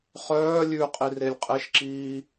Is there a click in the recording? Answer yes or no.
yes